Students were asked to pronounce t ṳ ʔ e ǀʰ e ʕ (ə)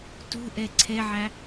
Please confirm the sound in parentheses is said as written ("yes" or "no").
no